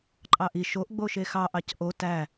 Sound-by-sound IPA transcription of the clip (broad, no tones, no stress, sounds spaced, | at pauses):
ǃʼ ɑ ʔ i ʃ o ʔ ɡ͡b o ʃ e x ɑ ʔ ɑ c ʔ o t æ